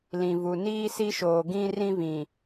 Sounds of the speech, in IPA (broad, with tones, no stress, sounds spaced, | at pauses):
l ĩ˨ v u˨ n iː˦ s i˦ ʃ oː˨ ɡ ĩ˦ r ĩ˦ v ĩ˨